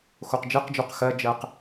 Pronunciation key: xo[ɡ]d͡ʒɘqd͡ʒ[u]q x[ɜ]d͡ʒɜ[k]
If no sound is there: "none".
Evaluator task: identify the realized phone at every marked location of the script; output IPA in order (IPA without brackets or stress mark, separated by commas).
q, u, ɜ, q